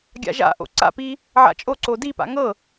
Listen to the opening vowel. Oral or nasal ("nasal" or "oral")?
oral